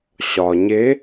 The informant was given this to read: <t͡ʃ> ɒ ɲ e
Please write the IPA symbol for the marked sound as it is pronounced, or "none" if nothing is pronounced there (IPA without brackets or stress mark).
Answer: ɕ